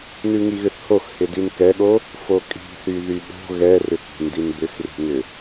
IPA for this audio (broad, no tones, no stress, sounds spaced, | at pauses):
n ʉ ŋ i ɣ ʏ θ h o x h ɪ d i n k ɛ ɠ o | f o kʼ i̤ θ y ð y ɠ o̤ ɣ ɛ r ʏ k i̤ n d i n b ʏ x r i̤ ŋ ʏ